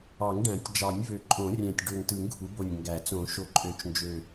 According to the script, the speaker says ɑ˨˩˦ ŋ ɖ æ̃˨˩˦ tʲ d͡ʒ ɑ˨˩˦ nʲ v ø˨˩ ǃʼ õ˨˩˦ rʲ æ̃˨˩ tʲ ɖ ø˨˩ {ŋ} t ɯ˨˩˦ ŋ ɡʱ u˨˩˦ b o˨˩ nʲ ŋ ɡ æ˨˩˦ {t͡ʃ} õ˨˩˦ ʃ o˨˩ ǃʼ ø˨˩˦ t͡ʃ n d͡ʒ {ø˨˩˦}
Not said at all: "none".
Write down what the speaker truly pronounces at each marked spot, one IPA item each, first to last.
ŋ, t͡s, ø˨˩

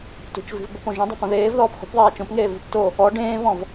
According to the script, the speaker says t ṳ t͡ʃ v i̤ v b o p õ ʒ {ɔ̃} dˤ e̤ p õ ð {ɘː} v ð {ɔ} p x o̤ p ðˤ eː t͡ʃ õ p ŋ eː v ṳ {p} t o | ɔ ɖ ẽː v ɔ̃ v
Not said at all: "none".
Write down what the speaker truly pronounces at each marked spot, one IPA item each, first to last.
õ, eː, ɔː, p

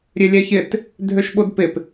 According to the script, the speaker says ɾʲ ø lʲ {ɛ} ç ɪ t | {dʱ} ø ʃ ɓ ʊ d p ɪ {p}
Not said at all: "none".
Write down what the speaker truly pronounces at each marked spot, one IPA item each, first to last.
ɛ, dʱ, p

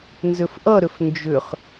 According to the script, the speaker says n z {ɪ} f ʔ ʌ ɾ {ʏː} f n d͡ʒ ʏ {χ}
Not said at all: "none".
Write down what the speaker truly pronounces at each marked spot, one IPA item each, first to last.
ʏ, ʏ, χ

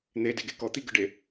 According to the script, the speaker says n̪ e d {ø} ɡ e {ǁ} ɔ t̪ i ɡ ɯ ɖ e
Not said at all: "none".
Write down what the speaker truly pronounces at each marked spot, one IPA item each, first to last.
e, k

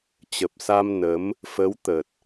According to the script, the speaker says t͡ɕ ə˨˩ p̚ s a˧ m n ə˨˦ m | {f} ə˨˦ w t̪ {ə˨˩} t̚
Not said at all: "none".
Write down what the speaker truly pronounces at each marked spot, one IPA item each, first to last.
f, ə˨˩

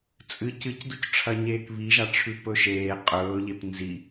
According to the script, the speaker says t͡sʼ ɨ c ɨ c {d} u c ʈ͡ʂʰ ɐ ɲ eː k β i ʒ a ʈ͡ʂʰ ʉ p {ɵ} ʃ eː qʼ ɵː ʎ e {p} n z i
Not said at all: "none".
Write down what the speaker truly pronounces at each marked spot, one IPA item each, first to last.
d, ɵ, p

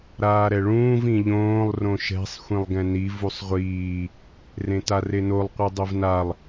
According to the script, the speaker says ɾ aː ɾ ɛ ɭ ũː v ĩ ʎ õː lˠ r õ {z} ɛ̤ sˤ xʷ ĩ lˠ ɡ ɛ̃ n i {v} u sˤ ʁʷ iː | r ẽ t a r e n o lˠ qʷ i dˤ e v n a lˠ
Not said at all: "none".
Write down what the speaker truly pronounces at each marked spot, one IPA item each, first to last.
ʃ, v

